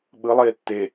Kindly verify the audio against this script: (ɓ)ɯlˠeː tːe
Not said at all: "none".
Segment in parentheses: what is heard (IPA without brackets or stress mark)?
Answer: ɓ